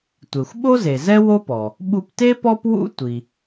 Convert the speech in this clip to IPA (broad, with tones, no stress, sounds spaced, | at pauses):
tʷ e˩ xʷ ɓ o˥ z e˩ z ɛ˥ w o˥ p ɔ˩ | ɓ u˧ p t e˥ p ɔ˥ p w ṵ˥ tʷ i˩